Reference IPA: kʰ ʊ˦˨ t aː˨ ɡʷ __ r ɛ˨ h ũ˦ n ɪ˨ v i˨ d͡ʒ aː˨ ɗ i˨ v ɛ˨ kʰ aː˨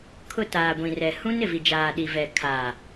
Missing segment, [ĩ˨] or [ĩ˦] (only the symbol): ĩ˨